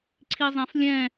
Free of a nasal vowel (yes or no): no